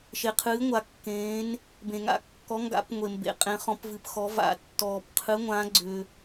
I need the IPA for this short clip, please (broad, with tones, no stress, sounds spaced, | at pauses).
ʃ e˨ qʰ ɨː˨˦ ŋʷ a˨ kː ẽː˨˦ n | b ẽ˨ ŋ a̰˨˦ kː ɔ˨˦ ŋ ɡ a̰˨˦ p ŋʷ e˨ m b ḛ˨˦ qʼ ẽ˨˦ χ ɔ̃˨˦ p v ɨ˨ p x ɔ˨˦ v a̰˨˦ tː ɔː˨ p qʰ ɨ˨˦ ŋʷ ã˨˦ ɡ͡ǀ ʏ˨